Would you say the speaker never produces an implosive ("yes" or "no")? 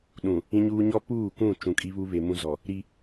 no